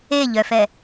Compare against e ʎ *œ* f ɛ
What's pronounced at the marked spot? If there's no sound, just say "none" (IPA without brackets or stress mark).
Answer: œ